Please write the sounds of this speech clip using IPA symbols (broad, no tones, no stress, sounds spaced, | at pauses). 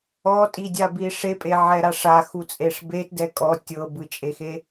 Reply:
ɔ tʼ i dʲ a b i ʂ e pʼ e ʕ ɛ ɾ a ʂ a x u t͡sʼ e ʂ b e t d ɛ kʼ ɔ tʲ ɤ b ɯ t͡ʃʼ e x e